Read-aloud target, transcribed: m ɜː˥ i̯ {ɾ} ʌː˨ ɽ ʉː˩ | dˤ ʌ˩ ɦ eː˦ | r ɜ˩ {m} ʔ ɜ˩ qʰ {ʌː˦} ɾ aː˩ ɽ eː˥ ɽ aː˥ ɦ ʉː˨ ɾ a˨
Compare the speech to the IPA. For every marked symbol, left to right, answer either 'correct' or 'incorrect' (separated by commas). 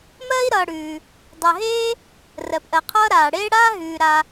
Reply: correct, incorrect, correct